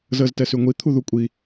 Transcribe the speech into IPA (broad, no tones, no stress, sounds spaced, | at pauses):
z əː z t ɛ s y ŋʷ i t̪ʰ u ð u kʷʼ i